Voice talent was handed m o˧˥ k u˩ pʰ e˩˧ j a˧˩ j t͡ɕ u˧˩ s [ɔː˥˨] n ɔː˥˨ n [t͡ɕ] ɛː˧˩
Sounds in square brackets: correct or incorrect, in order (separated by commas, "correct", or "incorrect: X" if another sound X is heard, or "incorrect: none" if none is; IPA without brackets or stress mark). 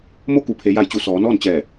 incorrect: ɔː˩˧, correct